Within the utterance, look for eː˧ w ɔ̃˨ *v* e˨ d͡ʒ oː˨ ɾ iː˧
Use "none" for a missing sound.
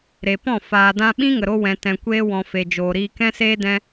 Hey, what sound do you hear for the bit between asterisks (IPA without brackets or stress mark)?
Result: f